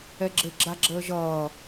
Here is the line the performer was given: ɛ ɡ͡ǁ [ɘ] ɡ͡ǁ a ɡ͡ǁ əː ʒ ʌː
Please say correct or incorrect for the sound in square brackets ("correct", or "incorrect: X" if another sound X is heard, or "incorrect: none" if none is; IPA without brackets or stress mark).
correct